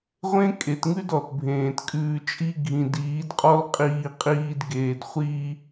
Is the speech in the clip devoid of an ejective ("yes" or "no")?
no